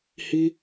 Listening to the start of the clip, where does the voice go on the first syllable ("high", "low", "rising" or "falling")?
high